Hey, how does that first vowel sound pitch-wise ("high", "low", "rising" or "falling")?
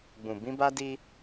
low